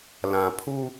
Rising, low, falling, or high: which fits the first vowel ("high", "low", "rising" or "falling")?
low